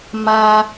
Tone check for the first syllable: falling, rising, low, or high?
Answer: high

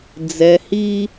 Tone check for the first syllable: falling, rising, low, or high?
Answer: low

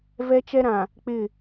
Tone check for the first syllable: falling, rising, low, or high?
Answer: high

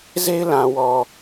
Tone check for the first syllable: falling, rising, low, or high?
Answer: high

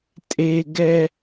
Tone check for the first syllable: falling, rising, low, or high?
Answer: high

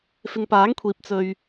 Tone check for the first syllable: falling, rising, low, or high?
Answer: low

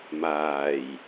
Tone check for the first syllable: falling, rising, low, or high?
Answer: low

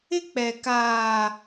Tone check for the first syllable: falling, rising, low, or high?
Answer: high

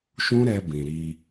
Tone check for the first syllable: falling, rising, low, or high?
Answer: high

